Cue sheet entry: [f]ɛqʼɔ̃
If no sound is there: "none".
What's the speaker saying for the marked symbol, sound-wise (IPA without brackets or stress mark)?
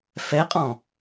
f